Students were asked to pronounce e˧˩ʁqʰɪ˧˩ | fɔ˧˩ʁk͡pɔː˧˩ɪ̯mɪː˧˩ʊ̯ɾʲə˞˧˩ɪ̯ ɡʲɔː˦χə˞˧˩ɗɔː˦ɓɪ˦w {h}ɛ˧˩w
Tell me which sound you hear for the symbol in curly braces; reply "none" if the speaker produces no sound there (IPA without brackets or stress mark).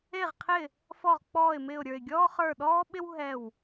ɦ